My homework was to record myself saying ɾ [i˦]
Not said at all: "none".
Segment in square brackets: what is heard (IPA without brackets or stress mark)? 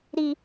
i˦